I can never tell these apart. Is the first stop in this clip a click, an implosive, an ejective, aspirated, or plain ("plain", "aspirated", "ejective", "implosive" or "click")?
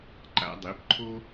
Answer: click